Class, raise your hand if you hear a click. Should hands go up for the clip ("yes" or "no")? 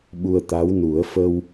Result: no